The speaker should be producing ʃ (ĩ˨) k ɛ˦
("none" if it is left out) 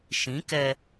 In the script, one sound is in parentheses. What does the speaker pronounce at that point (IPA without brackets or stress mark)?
ĩ˨˦